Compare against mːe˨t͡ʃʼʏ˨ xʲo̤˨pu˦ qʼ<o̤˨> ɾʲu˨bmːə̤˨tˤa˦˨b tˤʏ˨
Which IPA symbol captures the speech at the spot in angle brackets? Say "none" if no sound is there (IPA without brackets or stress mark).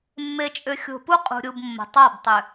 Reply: ṳ˨